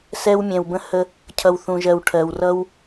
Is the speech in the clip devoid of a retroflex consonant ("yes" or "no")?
no